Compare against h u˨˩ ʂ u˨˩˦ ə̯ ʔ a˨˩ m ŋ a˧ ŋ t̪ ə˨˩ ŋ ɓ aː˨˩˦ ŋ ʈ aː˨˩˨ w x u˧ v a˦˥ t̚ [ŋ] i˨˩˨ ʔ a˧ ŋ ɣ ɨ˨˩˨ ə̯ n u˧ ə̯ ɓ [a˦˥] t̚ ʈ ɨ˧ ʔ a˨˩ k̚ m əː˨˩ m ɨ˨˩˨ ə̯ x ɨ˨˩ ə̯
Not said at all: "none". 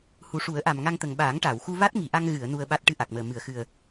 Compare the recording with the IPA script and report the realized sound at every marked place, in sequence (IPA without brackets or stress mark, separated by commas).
ŋ, a˦˥